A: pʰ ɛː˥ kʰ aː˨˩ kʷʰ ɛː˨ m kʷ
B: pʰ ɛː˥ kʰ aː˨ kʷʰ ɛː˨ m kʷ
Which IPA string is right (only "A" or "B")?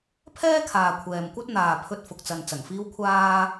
B